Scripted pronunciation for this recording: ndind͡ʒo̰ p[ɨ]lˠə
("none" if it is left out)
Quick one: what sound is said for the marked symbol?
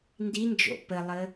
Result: ə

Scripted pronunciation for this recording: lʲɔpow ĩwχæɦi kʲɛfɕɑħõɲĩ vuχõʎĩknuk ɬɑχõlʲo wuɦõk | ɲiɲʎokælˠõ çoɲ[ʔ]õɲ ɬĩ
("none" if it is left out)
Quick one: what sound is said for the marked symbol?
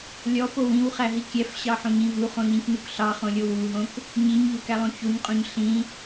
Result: qʼ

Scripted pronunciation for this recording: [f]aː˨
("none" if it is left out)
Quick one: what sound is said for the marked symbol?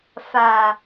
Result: f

